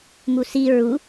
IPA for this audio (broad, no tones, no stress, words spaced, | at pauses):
musi ɹu